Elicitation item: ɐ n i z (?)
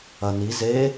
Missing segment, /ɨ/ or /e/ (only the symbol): e